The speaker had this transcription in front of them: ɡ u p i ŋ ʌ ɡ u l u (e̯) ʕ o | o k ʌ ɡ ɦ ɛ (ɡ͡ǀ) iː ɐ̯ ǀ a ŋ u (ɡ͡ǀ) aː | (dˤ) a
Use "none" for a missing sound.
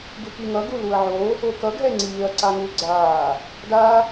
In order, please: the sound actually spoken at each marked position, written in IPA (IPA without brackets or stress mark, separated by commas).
ɐ̯, ŋ͡ǀ, ɡ͡ǀ, d